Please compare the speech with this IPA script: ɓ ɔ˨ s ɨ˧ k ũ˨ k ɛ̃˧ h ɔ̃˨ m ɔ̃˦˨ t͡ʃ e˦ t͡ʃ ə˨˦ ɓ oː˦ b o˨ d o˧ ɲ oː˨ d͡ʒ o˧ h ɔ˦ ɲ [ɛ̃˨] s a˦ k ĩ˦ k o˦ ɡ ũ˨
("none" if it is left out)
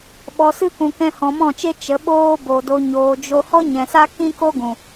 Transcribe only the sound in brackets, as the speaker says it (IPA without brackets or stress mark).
ɛ̃˨